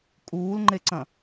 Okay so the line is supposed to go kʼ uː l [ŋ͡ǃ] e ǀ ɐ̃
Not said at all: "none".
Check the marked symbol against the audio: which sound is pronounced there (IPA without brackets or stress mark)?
ŋ͡ǃ